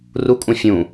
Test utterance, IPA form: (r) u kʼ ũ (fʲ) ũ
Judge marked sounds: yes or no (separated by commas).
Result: yes, yes